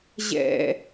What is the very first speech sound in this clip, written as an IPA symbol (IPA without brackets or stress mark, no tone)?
ʑ